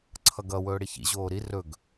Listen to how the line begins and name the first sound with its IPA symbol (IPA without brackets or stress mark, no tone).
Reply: ǀʰ